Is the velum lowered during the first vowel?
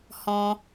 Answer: yes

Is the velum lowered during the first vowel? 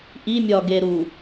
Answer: no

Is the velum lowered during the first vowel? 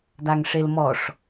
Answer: no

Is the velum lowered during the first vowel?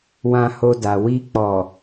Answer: yes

